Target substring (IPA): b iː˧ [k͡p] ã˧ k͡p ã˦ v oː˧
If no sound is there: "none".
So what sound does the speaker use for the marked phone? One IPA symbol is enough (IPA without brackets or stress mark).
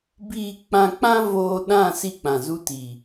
k͡p